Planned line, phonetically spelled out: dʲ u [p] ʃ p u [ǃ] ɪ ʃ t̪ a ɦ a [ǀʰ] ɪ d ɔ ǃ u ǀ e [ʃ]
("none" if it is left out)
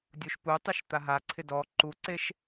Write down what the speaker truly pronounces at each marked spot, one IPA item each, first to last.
none, tˤ, ǀʰ, ʃ

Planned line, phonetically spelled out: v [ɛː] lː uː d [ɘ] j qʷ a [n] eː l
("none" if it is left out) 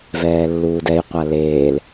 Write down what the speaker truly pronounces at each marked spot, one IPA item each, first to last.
ɛː, ɛ, l

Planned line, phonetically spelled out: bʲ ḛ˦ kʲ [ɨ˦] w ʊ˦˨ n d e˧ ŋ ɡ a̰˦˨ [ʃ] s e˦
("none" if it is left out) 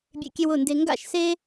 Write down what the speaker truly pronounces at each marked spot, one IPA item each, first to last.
e˦, ʃ

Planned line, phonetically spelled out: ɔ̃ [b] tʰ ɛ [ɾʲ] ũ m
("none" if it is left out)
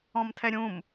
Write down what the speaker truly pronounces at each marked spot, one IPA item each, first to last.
m, ɾʲ

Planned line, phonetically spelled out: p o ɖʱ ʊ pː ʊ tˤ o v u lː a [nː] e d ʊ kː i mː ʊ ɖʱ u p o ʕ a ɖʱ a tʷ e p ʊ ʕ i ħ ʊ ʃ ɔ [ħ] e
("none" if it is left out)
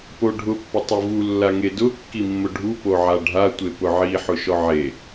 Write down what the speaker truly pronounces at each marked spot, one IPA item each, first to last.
ŋ, ʕ

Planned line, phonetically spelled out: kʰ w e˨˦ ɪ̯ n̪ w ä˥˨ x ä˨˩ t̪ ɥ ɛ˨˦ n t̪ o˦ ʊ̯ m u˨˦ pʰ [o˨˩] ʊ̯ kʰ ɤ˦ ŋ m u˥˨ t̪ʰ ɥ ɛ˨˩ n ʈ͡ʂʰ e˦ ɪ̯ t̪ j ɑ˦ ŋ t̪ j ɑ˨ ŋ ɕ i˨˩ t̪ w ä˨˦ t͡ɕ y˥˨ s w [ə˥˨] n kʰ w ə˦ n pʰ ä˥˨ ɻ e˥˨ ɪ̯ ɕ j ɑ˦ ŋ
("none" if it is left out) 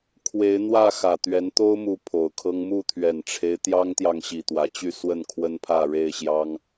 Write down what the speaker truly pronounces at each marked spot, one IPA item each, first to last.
o˨˩, ə˥˨

